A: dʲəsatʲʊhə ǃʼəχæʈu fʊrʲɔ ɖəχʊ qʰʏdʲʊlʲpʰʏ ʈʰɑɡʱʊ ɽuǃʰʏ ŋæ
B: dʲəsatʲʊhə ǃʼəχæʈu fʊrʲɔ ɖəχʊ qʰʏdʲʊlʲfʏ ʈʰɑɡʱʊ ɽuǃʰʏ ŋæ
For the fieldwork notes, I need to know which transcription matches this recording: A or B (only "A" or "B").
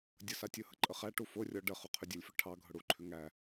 B